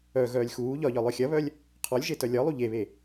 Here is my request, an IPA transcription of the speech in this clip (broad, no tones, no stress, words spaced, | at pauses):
œɣœːlʲ xuː ʎɒʎɒ lˠœxʲɐβœlʲ | qʰɔlʲʒe tœlʲɒlˠu ʎeβe